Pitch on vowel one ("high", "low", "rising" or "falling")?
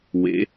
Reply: rising